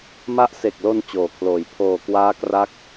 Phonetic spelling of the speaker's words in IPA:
m a˦˥ ʔ s e˨˩ k̚ l o˧ n t͡ɕ oː˨˩ kʰ l oː˨˩ j pʰ oː˨˩ k w aː˦˥ k r a˦˥ k̚

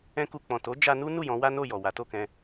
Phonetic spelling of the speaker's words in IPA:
ɛ̃˧ k u˨ k͡p ɔ̃˨ t o˨˦ d͡ʒ a˧ n u˦ n u˦˨ j ɔ̃˨˦ w a˦ n o˦˨ j ɔ˨ w a˨˦ t o˦˨ k ɛ̃˧

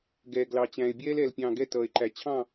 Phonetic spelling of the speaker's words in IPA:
ɡ ɛː˨ ɡ l ɑ˨ t͡ɕ æ̃˨ e̯ bʲ ɛː˦ l ɛː˨ l pʲ ɑ̃ː˨ ɡ ɛ˦ t ʌː˨ e̯ ǃ æ˨ t͡ɕʰ ɑ̃˦˨

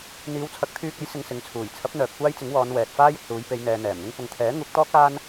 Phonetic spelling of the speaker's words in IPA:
n̪ iː˨˧ w t͡sʰ ɐ˨˥ k̚ t̪ʰ yː˧ k̚ ɐ˨˥ j s ɪ˧ ŋ s ɪ˨˧ ŋ t͡sʰ uː˨˩ j t͡sʰ ɐ˨˥ p̚ n̪ œː˨ p̚ kʷ aː˥ j t͡s ɪ˨˥ ŋ w ɔː˨˧ n w ɛː˨ t̚ f aː˥ j ɪ˨ k̚ s uː˨˧ j p e˨˧ j n̪ ɛː˨ n̪ ɛː˨˩ m n̪ ɪ˥ ŋ p ʊ˨ ŋ t̪ʰ ɛː˨˥ ŋ uː˨˥ k̚ t̪ ɔː˥ k̚ aː˥ n

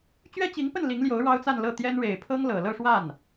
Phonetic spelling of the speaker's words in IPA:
t͡ɕ ɥ ɛ˥ t͡ɕ i˧˥ ŋ p ə˥˩ n l i˧˥ ŋ l j o˧˥ ʊ̯ ɻ ɑ˥ ʊ̯ t͡s a˥˧ n l ɤ˥˩ t̪ j ɛ˥ n ɻ e˨˩ ɪ̯ pʰ ɤ˥ ŋ l ɤ˨˩ l ɤ˥˧ ʂ w a˥˩ n

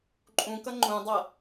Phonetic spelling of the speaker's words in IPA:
ǃʼ ũ k ʌ ŋ͡ǃ ũ dˤ ʌ

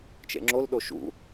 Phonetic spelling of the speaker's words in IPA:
t͡ʃ ḛ ŋ͡ǁ o l ɗ o ʃ ṵ

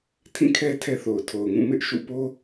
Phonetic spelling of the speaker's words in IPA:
tʰ ĩ˦˨ kʰ ɛ˦ tʰ ɛ˦ θ o˨ ʊ̯ tʰ o˨ ʊ̯ ŋ ũ˦˨ m ɪ˦ ʔ ʃ ṵ˦˨ p o˦

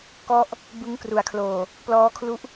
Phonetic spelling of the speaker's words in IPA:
k ɔ˥˩ ʔ | b ɯ˦˥ ŋ k r u˩˦ a̯ kʰ l oː˨˩ | p l ɔː˦˥ kʰ l u˦˥ ʔ

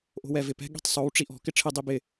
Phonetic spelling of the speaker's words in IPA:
ʔ o̤ w ɛ v ɪ p ɛ̤ ɠ i̤ tˤ sˤ o w ʈ͡ʂ i ʔ ɔ̤ k ɪ ʈ͡ʂʰ ɪ dˤ i b ɪ

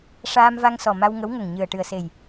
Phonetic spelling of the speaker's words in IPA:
ʂ aː˧ m v a˧ ŋ s ɔ˨˩ m a˧ w ŋ ə˧˥ w ŋ ə˨˩ ŋ ɲ ɨ˨˩ ə̯ ʈ ɨ˨˩ ə̯ s e˨˩ j

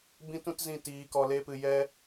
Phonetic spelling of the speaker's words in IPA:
b ĩ˦ t ũ˦ t z ĩ˦˨ t iː˧ k ɔ˧ l e˦ p ɨ˧ j ɛ˦

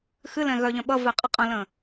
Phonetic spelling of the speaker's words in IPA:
x ɨ l ɛ̃ ɣ œ ʎ œ̃ ɓ ʌ v e qʼ ə qʼ ə̃ l ə̃

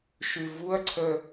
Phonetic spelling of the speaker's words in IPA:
ʃ ʉ v u ɐ̯ ǀʰ ə

